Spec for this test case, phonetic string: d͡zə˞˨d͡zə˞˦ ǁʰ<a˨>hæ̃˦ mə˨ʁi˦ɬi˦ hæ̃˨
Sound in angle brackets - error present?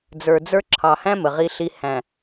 yes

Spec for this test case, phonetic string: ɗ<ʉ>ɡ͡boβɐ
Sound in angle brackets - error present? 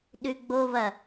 no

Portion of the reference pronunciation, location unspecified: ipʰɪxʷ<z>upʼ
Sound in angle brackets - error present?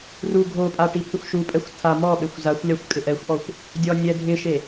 yes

